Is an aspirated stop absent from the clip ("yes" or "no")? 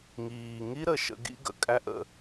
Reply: yes